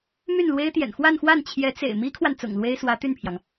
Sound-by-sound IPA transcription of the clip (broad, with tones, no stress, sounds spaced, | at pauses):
m y˥˩ n l w e˥ ɪ̯ t̪ j ɛ̰˨˩ n x w a˥˧ n x w a˥˩ n t͡ɕʰ j ɛ˧˥ t͡s ḛ˨˩ ɪ̯ m i˥ kʰ w a˨ n t͡s ʊ̰˨˩ ŋ l w e˥ ɪ̯ s w ä˧˥ t̪ y˥˩ n pʰ j ɑ˩ ŋ